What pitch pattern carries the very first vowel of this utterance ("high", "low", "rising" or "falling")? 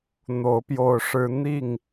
rising